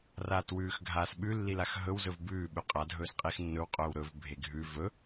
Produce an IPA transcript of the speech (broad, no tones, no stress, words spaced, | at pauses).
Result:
raːtwʉːxɡʱaːs ɓʉlːilax ɦɵw zɵvbʉː ɓʉqʼadʱɵːs qʼixnːɵwqʼɵːw ɾɵv bʱeɡʱʉ vɵ